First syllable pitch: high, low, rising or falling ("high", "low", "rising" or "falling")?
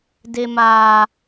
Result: high